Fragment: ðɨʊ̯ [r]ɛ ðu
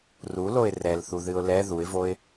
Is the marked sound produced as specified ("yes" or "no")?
no